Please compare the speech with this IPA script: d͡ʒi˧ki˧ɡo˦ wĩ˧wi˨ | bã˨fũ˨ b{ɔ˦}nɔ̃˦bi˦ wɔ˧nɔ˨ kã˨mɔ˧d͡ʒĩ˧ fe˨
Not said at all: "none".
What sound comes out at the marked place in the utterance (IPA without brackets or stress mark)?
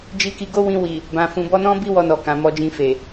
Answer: ɔ˧